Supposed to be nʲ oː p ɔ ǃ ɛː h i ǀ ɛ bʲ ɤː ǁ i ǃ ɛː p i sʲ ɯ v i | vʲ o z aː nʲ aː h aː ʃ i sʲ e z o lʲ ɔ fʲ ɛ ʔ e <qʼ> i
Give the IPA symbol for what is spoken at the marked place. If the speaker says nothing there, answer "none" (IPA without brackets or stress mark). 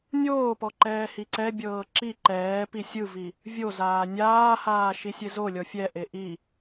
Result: ʔ